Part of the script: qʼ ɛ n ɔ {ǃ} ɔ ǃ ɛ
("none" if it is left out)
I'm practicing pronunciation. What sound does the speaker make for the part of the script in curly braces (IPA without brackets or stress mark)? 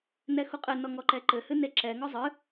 ŋ